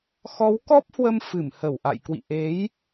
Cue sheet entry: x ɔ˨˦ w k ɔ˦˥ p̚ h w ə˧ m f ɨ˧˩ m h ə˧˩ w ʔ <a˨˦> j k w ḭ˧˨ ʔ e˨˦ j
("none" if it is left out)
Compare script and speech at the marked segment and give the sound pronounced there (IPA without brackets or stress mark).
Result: a̰˧˨